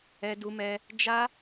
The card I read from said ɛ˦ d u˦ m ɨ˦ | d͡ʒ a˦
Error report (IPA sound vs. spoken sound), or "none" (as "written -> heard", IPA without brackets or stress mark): ɨ˦ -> ɛ˦